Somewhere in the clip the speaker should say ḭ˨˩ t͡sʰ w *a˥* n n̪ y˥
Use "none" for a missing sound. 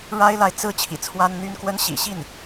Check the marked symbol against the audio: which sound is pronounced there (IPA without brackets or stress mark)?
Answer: a˥